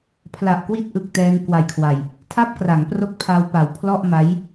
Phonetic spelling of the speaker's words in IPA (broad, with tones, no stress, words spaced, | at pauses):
pʰla˨˩ʔkwi˦˥t̚ ʔɯ˨˩k̚tɛː˧ŋkwa˨˩jkʰwa˨˩j | tʰa˥˩p̚kra˩˦ŋ pro˥˩k̚pʰa˧wpa˩˦w pʰlɔ˥˩ʔma˦˥j